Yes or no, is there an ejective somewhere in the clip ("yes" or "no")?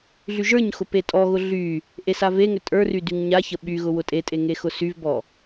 yes